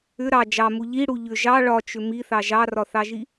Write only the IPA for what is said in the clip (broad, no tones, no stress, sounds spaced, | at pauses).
ʏ ɾ ɑ d͡ʒ ɑ m u ʎ i ɽ u ʎ ʏ ʒ ɑ ɭ ɒ t͡ʃ ʏ m i θ ɑ ʒ ɑ r ɒ θ ɑ ʒ i